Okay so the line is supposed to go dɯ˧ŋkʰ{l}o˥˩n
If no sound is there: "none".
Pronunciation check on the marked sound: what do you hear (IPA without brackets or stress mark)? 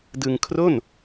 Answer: r